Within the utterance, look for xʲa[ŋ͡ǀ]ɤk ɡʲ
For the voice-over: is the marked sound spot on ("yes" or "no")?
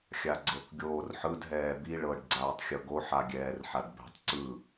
no